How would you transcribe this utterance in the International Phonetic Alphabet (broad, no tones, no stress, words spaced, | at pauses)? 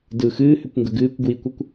dɯ xɨːhʏkʷŋɡə ɡɨːkʷɡwikʷəkʷ